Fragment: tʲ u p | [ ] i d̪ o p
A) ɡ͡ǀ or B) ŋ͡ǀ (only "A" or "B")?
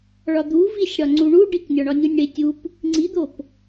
B